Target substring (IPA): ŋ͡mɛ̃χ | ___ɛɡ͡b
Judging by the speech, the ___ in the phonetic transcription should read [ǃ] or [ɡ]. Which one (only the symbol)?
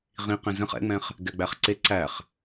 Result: ɡ